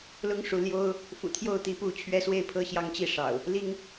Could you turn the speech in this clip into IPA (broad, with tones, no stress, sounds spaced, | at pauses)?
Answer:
l ʊ˦ ŋ ʂ u˨ l j o˦ ʊ̯ | f ṵ˨˩ t̪ʰ j o˥˨ ʊ̯ t̪ i˥˨ p u˥˨ t͡ɕʰ ɥ ɛ˦ s w e˥˨ ɪ̯ pʰ ɤ˦ ɕ j ɑ˦ ŋ t͡ɕ i˥˨ ʂ ɑ̰˨˩ ʊ̯ | l i˦ ŋ